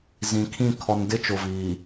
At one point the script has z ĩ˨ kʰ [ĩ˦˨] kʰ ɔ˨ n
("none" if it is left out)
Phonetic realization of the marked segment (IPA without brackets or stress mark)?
ĩ˦˨